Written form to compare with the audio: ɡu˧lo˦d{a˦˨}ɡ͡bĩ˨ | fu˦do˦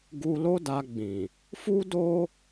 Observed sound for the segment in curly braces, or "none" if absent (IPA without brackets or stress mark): a˧